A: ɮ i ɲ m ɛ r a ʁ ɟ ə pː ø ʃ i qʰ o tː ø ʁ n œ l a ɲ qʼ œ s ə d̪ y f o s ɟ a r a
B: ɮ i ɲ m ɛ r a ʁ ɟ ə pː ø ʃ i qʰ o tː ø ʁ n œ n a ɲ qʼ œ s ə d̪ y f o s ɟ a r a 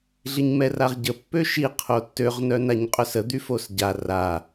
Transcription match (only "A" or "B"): B